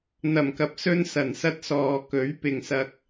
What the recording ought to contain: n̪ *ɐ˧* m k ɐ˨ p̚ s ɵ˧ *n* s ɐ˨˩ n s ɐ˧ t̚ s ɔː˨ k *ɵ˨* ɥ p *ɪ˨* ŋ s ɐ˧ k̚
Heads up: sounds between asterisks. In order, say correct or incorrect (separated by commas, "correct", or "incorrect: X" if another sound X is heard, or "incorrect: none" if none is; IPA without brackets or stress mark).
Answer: incorrect: ɐ˨˩, correct, incorrect: ɵ˨˥, correct